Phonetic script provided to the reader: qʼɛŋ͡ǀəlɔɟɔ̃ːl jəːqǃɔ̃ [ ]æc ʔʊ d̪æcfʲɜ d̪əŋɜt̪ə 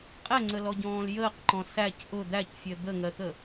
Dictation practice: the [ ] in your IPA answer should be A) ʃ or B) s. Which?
B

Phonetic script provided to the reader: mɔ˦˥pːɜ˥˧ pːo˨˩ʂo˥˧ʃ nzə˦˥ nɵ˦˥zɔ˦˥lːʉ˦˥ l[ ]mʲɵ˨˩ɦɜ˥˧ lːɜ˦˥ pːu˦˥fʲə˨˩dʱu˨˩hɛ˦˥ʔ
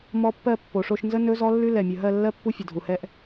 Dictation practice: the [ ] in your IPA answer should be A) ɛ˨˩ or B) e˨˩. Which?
A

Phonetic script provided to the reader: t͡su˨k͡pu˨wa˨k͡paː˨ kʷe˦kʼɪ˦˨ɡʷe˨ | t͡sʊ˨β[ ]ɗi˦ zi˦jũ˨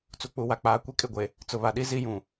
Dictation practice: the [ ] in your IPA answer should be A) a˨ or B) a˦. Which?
A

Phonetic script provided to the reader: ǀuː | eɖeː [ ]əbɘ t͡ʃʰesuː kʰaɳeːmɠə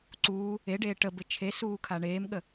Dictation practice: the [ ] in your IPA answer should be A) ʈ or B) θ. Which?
A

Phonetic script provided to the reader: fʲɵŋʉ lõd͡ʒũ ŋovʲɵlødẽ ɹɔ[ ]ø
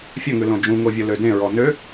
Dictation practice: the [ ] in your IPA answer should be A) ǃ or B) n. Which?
B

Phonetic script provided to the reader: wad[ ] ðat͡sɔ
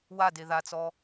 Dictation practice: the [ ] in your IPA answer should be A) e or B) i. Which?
A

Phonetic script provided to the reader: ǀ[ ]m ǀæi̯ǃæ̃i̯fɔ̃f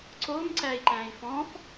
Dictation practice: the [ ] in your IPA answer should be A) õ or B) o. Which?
B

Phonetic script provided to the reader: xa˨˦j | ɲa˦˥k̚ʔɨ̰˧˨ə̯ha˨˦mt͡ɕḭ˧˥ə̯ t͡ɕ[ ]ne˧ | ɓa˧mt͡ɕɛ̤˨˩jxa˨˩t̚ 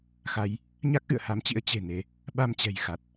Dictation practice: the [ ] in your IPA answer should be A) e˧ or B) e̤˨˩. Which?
B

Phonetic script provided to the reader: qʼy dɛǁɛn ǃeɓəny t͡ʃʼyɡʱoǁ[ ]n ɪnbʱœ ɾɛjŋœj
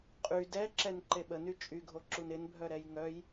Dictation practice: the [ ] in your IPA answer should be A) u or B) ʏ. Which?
A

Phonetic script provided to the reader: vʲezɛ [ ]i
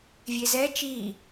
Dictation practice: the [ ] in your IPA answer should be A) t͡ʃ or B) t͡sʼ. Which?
A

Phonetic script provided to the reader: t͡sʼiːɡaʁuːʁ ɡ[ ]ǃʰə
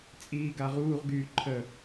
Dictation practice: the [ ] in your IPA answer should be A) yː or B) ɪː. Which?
A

